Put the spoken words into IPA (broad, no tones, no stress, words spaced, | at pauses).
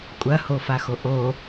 kʷʼɐhofaxo ʔo